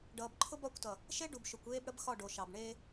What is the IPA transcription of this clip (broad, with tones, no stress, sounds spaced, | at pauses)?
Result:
ɖ ʌː˨ b ǃʰ ʊ˦ b ɒ˦˨ kʷ t ʌ˨ | ʃ e˦ ɖ u˨ b ʃ ʊ˨ kʷ eː˦ b ɽ ə˦ b x ɒ˦˨ ɖ o˨ ʃ ɑ˨ b ɳ e˦